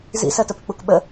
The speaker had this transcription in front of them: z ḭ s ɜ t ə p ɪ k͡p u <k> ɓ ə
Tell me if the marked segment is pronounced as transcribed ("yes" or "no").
yes